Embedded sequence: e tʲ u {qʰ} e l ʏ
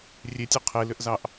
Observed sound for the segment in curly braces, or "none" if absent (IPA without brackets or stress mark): qʰ